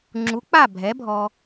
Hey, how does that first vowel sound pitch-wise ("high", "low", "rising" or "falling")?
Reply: rising